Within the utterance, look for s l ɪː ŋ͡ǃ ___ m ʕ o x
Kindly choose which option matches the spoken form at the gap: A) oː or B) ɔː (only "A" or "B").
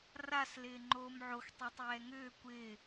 A